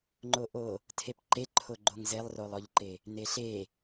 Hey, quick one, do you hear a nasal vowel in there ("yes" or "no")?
no